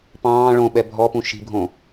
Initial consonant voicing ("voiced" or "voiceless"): voiceless